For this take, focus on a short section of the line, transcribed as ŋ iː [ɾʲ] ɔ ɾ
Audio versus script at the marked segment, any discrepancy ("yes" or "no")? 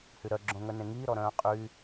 yes